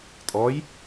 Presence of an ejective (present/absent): present